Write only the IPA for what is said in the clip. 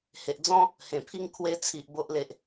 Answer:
he˨ʔd͡zɔ̃˦ | hẽ˨˩pʰi˥˧ŋ kʰwe˧t͡sʰi˨ʔ bo˦ʔle˦ʔ

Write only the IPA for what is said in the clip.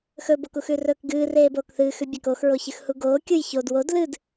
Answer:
xɵbokux ʉrɵːkɡɨːreː boːkθɨːxʉ bʲakoxɹoçɨx huɡoː kʲujçod wod lɨd

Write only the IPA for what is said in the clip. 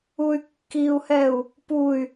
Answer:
uy̯kːiu̯hɛu̯ | puy̯

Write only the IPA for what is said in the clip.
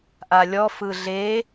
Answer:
ʔalʲɔ fɯɮe

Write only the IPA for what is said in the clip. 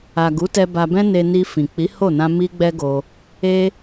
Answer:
a˨ ɡu˨˦tɛ˧ ba˧bɛ̃˦ne˧ ni˧fĩ˨ k͡pi˨˦ho˦˨ nã˧ mi˦ɡ͡bɛ˦ɡo˧ | e˦

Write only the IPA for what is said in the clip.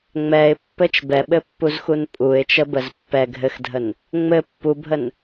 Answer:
ŋ͡mɛɪ̯pːɘt͡ʃ bɛɓɘpːuzxun pʼuɪ̯t͡ʃəbəz pːɛ ɡʱɘxdʱən | ŋ͡mɘ pːubʱən

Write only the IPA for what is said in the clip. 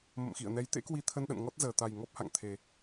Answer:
mə̰˧˨mxḭ˧˨ə̯nɛ˨˦j t̪ḛ˧˥kwi˧t̪ʰə˧nɗə̰˧˨n ŋɔ˦˥t̚ zəː˨˩t̪a˨˩j ŋɔ˦˥p̚ha̰˧˨ŋt̪ʰe˨˩

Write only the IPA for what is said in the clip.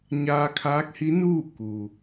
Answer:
ɲaː˧kʰaː˧˥k̚hi˧˥nuː˥˨ ku˩

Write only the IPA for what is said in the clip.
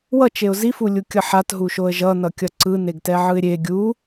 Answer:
wʌt͡ʃeʊ̯ zifulʲukʲʌ ħatɦuʃoə̯ ʒʌnʌkʲʌ ǀɯneɡtɛʕɯɪ̯ ɾʲe ɡʲu

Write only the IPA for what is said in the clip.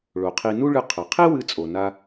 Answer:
ɭo˩qʰi˧ nu˥ɭɨ˧ qʰɐ˩qʰi˥wɨ˧ t͡sʼo˩na˥

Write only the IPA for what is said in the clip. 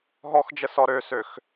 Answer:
ɦɔxd͡ʒə sɔɾøsøx

